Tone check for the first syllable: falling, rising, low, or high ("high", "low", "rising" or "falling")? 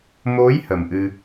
rising